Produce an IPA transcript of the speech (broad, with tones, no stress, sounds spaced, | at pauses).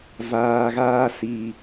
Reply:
v aː˨ ɣ aː˧ s i˨